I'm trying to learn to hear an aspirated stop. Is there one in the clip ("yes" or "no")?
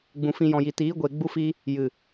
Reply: no